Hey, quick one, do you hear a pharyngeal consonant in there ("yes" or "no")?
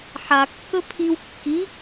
yes